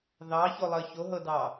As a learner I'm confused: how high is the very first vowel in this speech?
low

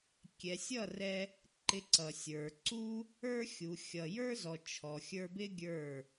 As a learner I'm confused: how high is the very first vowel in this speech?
mid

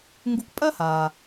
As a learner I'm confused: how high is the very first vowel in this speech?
high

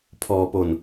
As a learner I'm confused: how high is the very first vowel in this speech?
mid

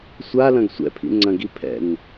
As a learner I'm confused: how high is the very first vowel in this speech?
low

